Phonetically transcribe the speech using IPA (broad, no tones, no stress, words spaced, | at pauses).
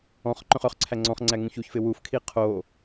ɔ̃χ ǃœ̃χœχǀʰæ ŋ͡ǀɔ̃χŋ͡ǀæ ŋũçuçfɪ wufkʰi qʰo